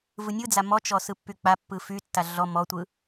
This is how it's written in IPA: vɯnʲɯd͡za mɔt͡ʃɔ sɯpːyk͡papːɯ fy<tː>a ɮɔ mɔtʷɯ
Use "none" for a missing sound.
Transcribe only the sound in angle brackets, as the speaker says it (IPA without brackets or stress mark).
tː